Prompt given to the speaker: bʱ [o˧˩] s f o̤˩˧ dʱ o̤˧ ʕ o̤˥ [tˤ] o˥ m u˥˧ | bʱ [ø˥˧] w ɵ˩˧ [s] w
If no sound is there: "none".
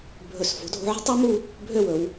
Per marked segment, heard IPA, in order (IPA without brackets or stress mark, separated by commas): ɵ˧˩, tˤ, ø˥˧, none